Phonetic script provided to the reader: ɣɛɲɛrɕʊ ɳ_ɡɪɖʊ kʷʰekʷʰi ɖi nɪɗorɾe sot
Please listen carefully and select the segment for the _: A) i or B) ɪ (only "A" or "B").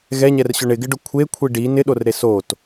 B